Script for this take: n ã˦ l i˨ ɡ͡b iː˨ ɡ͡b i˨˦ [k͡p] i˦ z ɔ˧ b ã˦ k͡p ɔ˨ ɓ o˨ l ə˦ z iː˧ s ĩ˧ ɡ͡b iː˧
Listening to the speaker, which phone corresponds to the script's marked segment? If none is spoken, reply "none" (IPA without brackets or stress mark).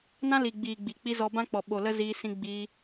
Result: k͡p